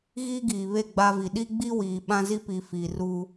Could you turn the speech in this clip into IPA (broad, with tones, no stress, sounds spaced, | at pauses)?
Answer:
ɣ iː˦ ɡ iː˨ β e˦˨ ɡ͡b a˦ v i˨ ɗ i˦ ɡ͡b i˦ w iː˨ ɓ ã˦ z i˦ p i˨ f i˨ r u˦